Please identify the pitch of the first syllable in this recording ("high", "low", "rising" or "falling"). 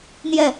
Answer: falling